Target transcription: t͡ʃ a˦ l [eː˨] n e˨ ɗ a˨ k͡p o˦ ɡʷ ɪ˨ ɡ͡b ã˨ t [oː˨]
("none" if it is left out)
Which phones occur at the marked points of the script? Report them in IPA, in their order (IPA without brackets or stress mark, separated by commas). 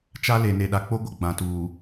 e˨, uː˨